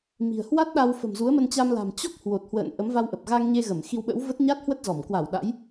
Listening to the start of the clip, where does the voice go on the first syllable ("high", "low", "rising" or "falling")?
low